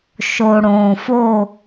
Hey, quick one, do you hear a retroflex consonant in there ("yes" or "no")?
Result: yes